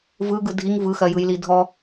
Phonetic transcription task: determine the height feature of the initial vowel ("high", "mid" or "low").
high